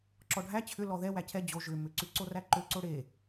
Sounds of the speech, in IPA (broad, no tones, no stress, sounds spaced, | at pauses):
ǁ ɔ ɖʱ æ t͡ɕʰ ʏ l ɔ ð ɛ w æ cʰ ɛ d͡ʑ o ʒ ʏ m ʏ ǀ ʉ ǀ o r æ ǃ ø ǀ o ɽ e